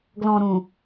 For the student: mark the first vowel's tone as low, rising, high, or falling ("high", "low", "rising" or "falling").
low